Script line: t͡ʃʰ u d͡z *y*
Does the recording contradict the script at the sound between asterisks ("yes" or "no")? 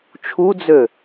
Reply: yes